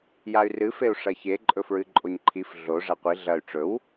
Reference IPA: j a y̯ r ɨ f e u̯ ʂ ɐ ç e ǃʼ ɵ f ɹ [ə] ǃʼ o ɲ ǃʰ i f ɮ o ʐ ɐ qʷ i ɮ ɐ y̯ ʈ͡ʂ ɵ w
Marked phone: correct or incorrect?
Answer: incorrect